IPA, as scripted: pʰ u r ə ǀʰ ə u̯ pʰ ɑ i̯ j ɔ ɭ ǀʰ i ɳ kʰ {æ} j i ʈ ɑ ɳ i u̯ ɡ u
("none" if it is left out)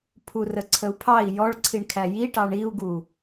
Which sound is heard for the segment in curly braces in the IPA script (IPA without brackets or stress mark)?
æ